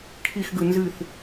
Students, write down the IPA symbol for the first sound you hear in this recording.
kʰ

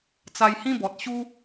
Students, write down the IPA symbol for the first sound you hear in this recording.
t͡s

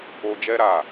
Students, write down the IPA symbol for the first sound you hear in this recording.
o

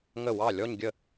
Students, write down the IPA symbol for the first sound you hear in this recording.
ŋ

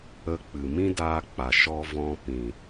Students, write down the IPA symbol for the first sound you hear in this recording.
ə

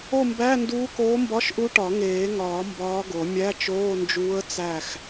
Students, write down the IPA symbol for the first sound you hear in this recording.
o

